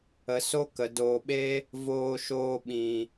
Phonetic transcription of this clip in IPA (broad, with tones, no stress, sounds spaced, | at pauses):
ə˧ s o˦ k ə˨ d oː˨ ɓ e˦ | v oː˧ ʃ oː˧ ɓ ĩ˨